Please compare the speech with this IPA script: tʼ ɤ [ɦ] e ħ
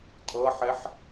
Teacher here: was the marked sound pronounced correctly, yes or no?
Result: no